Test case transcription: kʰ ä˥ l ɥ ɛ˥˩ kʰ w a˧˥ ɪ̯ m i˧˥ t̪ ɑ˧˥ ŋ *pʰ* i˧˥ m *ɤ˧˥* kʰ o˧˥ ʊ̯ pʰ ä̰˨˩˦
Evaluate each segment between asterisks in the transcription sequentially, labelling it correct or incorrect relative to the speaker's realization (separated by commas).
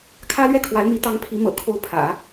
correct, incorrect